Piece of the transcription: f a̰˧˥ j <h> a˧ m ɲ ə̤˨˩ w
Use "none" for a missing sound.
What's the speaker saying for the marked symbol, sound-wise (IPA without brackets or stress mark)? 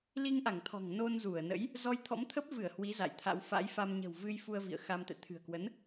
f